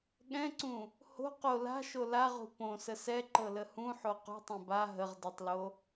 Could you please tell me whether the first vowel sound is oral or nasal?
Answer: nasal